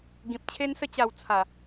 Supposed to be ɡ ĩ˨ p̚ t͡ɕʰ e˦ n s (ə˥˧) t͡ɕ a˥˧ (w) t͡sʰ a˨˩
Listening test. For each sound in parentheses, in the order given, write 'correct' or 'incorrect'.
correct, correct

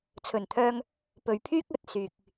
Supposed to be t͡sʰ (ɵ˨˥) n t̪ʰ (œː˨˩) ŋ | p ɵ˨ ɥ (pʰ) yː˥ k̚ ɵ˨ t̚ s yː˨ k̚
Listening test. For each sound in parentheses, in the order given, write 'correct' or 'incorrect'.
incorrect: ɵ˨˩, incorrect: œː˧, correct

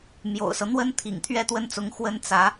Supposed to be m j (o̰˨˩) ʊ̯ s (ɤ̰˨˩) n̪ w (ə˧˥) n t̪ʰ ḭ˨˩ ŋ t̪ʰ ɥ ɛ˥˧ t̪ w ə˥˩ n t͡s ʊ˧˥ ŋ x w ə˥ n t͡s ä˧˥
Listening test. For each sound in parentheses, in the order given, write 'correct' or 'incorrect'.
correct, incorrect: ɤ˦, incorrect: ə˥

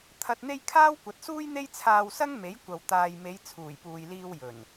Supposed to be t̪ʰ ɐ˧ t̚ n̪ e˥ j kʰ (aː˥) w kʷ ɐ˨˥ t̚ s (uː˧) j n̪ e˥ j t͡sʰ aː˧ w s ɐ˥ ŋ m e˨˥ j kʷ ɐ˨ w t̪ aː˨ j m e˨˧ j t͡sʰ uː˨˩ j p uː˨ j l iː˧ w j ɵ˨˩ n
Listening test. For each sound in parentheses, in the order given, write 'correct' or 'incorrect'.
correct, incorrect: uː˥

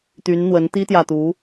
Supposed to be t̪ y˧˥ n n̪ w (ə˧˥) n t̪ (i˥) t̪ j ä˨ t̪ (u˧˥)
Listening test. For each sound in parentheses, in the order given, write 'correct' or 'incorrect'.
correct, correct, correct

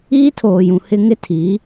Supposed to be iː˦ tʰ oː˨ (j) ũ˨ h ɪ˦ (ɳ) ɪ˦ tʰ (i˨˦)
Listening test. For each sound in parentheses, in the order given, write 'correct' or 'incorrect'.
correct, incorrect: ŋ, correct

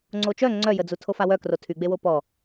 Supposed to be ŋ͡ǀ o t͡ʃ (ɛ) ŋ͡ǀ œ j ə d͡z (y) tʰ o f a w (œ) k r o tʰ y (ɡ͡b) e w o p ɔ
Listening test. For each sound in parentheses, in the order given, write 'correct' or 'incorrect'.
incorrect: œ, incorrect: u, correct, correct

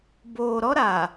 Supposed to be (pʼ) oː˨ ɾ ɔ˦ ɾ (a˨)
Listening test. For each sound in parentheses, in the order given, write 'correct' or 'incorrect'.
incorrect: b, correct

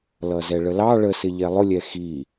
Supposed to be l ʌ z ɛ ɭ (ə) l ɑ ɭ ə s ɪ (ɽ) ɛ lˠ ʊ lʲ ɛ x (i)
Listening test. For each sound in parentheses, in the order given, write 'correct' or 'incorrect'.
correct, incorrect: ʎ, correct

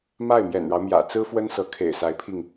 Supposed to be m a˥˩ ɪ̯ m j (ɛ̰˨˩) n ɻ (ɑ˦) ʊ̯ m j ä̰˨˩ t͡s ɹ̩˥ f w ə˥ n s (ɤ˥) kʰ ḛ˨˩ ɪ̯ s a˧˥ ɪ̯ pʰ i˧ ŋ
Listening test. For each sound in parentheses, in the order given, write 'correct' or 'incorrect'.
correct, correct, incorrect: ɤ˧˥

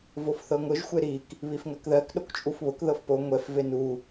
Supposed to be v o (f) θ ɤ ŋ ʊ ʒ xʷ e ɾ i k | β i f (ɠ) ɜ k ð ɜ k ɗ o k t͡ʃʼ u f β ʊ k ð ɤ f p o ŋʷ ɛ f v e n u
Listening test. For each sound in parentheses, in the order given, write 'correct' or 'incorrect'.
correct, incorrect: ŋ

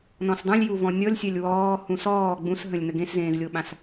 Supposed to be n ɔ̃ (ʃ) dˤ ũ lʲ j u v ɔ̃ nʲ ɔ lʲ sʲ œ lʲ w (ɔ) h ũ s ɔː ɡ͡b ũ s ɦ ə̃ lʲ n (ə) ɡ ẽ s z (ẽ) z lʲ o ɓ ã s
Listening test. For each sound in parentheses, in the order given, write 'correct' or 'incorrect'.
incorrect: s, incorrect: ɔː, correct, incorrect: ẽː

